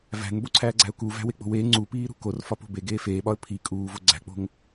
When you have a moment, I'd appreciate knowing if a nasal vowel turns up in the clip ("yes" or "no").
no